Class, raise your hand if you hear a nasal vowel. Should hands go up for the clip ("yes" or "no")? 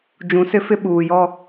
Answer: yes